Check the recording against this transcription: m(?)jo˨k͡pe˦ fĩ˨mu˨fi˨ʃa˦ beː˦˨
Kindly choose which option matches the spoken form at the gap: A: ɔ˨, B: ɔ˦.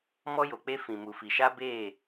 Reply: B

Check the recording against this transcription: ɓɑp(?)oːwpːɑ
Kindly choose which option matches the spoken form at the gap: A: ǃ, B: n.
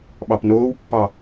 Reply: B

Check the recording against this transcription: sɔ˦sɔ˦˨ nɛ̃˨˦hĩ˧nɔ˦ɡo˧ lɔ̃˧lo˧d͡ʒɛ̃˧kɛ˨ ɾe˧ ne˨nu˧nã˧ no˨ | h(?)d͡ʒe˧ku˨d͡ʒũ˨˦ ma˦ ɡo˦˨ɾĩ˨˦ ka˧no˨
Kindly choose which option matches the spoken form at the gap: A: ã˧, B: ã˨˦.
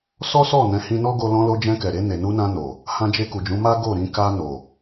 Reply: A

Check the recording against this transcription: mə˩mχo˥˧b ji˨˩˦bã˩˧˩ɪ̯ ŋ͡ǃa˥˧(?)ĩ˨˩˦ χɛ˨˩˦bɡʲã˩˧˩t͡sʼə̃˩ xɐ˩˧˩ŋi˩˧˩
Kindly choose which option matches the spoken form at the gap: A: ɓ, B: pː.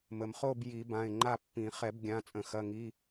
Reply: B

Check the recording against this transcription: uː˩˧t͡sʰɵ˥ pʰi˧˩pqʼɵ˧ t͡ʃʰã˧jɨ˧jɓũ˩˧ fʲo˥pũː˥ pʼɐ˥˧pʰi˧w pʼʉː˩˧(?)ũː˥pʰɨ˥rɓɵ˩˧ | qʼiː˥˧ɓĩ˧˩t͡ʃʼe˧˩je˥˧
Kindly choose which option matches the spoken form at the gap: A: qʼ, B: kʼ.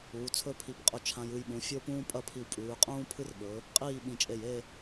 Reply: A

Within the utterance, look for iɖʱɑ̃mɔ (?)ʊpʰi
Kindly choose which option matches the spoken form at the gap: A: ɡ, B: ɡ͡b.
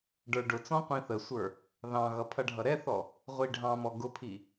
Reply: A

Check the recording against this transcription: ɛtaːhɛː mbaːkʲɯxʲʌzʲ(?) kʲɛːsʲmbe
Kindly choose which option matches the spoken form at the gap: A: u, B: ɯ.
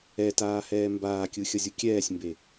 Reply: A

